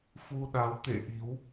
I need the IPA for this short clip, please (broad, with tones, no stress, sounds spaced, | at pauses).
f u˧ ɗ a˨˦ w t̪ ḛ˧˨ ʔ i˨˦ w